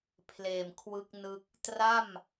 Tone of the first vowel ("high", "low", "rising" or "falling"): low